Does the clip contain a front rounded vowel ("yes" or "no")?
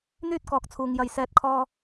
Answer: yes